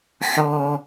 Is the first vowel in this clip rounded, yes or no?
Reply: yes